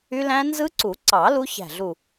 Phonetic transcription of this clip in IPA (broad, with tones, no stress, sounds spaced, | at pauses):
y˦˥ l æ̃˦˥ n z ɯ˦˥ ǀ u˨˩˦ ǀ ɑ˨˩˦ l u˦˥ ç æ̤˧˩ ɮ u˧˩